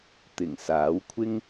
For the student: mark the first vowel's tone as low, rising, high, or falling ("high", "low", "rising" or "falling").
low